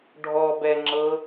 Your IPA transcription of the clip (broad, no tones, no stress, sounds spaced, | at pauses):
ɖʱ ɔ b ɛ ŋ͡ǁ ɤ